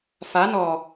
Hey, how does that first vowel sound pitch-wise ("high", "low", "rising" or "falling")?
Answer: rising